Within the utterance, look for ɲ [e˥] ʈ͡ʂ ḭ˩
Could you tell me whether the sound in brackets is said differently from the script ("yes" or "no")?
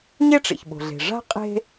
no